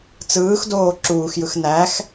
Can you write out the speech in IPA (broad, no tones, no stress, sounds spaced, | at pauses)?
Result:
t͡s ɯː x d oː ǁ uː x j ɯ x n æ x